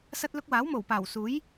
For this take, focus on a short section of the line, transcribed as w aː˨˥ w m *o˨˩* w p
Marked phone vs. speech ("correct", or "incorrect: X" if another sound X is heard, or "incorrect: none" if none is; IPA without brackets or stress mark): correct